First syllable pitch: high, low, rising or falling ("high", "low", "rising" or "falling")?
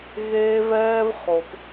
high